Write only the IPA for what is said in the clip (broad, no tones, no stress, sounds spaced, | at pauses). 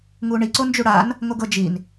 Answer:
ŋ u ɳ i ǀ o n d͡ʒ u ɽ a n | ŋ o ɡ ɤ d͡ʒ i n